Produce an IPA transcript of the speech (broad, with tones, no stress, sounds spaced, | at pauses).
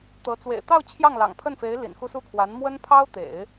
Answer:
t̪ ɤ˧˥ t͡s w ḛ˨˩ ɪ̯ t̪ ɑ˥˧ ʊ̯ t͡ɕʰ j ɑ˥˩ ŋ l ɑ̰˨˩ ŋ pʰ ə˥˩ n f e˧˥ ɪ̯ l ḭ˨˩ n x u˥˧ s u˥˩ kʰ w a˧˥ n m w ə˥ n pʰ ɑ˥ ʊ̯ t̪ ḛ˨˩˦ ɪ̯